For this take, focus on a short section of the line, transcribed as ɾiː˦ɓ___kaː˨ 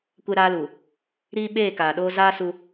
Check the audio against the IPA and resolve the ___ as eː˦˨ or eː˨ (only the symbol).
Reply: eː˦˨